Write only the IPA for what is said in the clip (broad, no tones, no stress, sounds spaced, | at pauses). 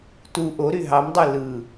t u ʔ o ɾ y ɦ ɑ m dˤ e l ɯ